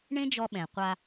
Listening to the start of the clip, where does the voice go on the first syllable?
high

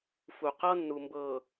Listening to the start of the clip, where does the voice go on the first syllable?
low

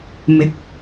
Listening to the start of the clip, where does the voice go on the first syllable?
rising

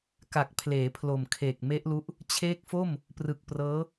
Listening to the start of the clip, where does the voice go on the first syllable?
low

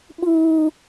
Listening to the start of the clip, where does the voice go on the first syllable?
high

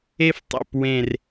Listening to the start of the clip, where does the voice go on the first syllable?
high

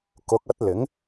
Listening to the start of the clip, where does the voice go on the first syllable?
rising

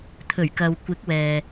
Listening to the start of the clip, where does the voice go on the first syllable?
low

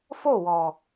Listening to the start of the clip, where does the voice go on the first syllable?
falling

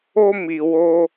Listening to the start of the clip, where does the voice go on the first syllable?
high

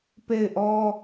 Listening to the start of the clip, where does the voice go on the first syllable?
falling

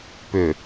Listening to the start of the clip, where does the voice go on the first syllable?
low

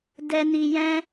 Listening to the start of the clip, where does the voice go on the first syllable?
high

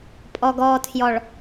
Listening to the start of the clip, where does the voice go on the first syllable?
low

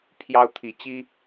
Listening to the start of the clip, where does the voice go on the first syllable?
high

